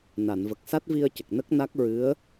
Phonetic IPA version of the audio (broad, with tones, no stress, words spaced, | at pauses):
na˨˩˨nvə˨˩k̚ sa˦˥t̚vi˧ə̯cə˨˩k̚ nə˦˥k̚na˦˥k̚ɹɨ˧˥ə̯